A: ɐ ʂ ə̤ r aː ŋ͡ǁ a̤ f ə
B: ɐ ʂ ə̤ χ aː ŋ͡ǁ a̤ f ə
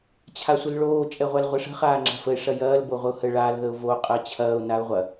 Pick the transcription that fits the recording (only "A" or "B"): B